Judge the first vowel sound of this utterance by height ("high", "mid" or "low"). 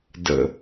mid